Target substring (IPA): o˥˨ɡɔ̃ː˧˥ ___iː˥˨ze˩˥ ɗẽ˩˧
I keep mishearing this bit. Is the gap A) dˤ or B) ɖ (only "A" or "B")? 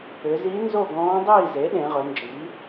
A